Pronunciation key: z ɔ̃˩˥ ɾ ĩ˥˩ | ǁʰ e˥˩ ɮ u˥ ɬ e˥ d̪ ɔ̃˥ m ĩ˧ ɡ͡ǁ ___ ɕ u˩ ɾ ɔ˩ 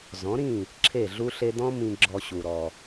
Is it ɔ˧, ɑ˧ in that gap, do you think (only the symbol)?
ɔ˧